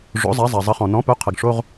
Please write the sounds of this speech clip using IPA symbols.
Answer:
ʐ o̰˩˥ zˤ a˩˥ zˤ a˩ zˤ ə˩˥ χ ɔ̃˩ n ɔ̃˩˥ p œ˩˥ qʰ ə˩ ɡ ʂ o˧˥˧ ʁ

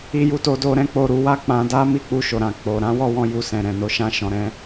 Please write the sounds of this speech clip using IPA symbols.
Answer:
i˧ j u˧ t o˧ d o˧ ɾ ɛ̃˧ k͡p o˧ ɾ u˧ w a˦ k͡p ã˧ d a˦ m i˦˨ k͡p u˧ ʃ o˨ ɾ ã˨ k͡p o˨ ɾ ã˨˦ w ɔ˦˨ w ɔ̃˧ j u˧ s ɛ̃˨ ɾ ɛ̃˨ n o˧ ʃ ã˦ ʃ ɔ̃˧ ɾ ɛ̃˦

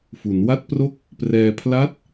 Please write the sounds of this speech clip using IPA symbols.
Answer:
f u˩˦ n w a˥˩ t̚ p r o˥˩ k̚ | p r ɛː˧ pʰ l a˦˥ t̚

